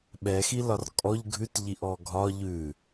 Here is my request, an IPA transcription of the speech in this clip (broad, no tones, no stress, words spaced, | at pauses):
ɓɛxilɒr kʼɔʎ ɡʱʉtʎiʔɔ ɡʱɒ ʎʉ